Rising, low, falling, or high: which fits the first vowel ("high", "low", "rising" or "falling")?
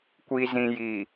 low